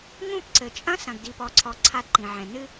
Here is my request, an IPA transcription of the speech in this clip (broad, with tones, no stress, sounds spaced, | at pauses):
ŋ ũ˦˨ p ǀ ɘ˨ t͡ʃʼ ɐ̃˦ s ɐ̃˨ ɡ d i˨ p ɔ˨ ǀʰ ɔ˨ ǀʰ a˦ d ǃ ĩ˨ ʕ ɛ̃˨ n ɨ˦